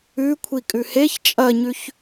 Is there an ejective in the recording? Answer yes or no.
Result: yes